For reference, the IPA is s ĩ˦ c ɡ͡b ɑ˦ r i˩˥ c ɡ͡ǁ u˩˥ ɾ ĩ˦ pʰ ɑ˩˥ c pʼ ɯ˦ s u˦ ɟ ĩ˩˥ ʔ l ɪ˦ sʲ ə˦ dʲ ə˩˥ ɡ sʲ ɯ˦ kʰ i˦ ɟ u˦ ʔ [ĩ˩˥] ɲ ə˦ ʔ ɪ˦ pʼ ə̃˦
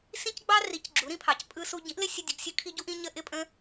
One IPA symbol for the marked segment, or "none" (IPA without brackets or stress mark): ĩ˦